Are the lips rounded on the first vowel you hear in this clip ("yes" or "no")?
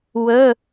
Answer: yes